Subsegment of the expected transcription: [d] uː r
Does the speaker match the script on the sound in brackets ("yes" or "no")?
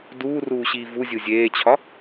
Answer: yes